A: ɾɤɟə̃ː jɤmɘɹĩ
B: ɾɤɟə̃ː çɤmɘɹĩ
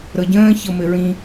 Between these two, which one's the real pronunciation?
B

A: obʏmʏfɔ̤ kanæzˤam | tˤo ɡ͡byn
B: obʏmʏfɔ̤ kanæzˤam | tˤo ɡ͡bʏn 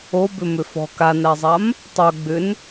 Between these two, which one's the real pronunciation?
B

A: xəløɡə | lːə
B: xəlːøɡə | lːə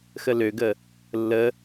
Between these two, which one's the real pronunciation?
A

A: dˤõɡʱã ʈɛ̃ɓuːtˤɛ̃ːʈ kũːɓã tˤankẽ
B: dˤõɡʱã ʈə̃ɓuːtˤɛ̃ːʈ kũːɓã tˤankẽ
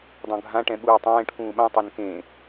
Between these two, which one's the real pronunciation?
A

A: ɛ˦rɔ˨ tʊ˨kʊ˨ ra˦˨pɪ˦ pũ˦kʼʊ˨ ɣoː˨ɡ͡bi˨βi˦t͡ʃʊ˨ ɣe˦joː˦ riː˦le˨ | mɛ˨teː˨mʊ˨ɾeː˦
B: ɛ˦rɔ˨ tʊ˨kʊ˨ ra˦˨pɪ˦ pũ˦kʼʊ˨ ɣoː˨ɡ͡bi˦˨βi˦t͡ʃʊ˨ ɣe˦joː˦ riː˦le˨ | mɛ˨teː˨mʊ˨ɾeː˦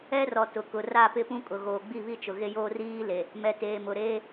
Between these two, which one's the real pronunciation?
B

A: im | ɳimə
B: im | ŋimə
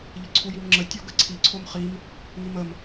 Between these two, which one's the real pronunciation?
B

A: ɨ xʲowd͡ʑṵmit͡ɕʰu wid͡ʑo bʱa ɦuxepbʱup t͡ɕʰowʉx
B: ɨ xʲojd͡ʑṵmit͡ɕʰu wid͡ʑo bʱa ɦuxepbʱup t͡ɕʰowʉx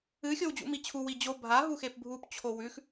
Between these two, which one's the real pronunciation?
A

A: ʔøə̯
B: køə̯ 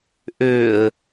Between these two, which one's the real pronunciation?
A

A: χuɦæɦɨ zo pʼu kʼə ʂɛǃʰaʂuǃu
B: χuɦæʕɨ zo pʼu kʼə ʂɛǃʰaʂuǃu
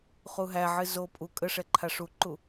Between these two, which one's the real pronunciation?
B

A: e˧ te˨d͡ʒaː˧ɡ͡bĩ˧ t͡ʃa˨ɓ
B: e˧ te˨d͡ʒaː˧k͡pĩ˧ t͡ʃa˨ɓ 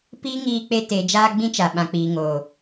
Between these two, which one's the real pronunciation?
A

